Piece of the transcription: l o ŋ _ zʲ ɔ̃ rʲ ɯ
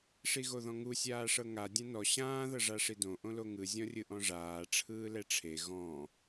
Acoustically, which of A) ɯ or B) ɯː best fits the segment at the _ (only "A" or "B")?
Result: A